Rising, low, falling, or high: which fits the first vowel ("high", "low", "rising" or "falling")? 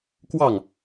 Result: falling